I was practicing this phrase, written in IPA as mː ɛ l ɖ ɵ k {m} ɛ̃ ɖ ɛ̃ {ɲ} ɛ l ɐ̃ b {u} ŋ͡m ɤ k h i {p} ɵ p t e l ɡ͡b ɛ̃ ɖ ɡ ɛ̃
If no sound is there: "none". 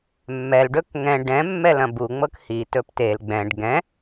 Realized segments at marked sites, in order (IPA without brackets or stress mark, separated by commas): ŋ, mː, u, t